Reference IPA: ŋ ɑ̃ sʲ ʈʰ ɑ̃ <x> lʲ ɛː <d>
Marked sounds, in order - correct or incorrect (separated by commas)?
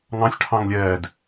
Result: incorrect, correct